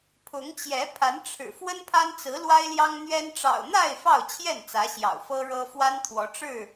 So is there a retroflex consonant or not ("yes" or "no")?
yes